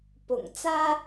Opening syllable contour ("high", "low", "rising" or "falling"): low